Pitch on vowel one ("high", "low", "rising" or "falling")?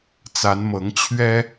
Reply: rising